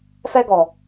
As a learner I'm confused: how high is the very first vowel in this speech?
mid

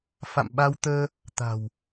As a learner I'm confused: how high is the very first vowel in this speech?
low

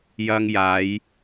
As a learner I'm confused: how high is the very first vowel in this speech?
low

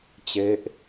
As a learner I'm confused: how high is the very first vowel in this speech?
mid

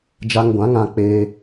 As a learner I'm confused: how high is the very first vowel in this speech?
low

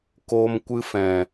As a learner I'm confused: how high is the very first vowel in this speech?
mid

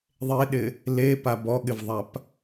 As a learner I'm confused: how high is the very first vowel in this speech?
mid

